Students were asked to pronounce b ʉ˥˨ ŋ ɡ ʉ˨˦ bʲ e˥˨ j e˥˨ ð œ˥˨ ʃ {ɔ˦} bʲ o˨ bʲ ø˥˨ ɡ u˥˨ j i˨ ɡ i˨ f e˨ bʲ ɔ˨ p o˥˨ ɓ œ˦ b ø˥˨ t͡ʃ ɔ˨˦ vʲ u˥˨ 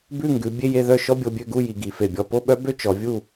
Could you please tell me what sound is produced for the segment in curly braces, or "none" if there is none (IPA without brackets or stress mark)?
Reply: ɔ˦